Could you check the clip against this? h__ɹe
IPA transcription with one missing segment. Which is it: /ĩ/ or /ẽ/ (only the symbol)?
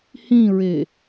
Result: ĩ